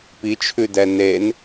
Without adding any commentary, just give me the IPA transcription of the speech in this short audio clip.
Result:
p i t͡ʃʰ ʉ d ɛ n e n

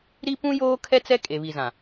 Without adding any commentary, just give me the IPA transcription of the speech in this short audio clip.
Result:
ɾ i˦ p ũ˦ j oː˦ kʰ ɛ˦ t͡s ɛ˦ kʼ e˨ β i˨ z ã˨

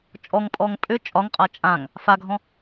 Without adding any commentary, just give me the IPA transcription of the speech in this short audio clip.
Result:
t͡ʃʼ ɔ ŋ pʼ ɔː ŋ pʼ ʏ t͡ʃʼ ɒ ŋ qʼ a t͡ʃʼ ã ŋ | f a ɡʱ ɔ̃

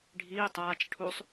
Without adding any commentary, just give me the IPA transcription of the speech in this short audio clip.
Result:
ɖʱ iː tˤ aː t͡ʃ ʈʰ u sˤ

